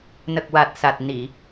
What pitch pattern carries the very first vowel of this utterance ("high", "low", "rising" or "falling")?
low